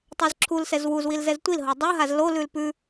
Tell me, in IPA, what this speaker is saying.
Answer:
tˤɛzǁʰulsɛz wuz wilzɛztʷilɦo dˤoɦaz lolʉl pʉ

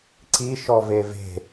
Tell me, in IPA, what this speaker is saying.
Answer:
ǀi ʃɔveve̤

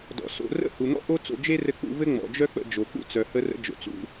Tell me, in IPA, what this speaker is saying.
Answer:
dɔ̰˩so̰˧ rə̰˥hu˩n̪ɔ̰˥ ʔo˥t͡so̰˧d͡ʒe˥ rɘ˧k͡pṵ˧vɘ˥ ŋ͡mɔ̰˩d͡ʒœ˥ k͡pə̰˧d͡ʒo˩ k͡pṵ˥t͡sœ˩hə˧rə̰˧ d͡ʒo̰˩t͡sṵ˧

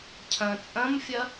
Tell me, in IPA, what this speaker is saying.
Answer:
cʰɐ̃ t͡sʼɐ̃mfʲɐ

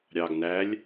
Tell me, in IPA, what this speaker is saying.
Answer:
ɾʲɑɡ nælʲ

